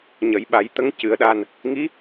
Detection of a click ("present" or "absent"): absent